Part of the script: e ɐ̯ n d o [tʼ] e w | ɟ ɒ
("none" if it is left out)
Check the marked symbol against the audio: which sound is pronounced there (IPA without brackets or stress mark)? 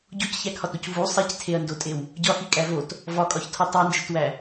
tʼ